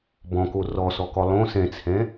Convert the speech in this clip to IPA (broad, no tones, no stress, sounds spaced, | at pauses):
b ɔ̃ k o r ɔ s ɔ k ɔ lˠ õ s ɛ̃ t͡sʰ ɛ̃